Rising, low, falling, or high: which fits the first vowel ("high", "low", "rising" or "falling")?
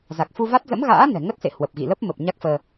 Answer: low